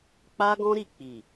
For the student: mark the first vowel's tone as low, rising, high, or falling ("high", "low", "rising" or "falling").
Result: high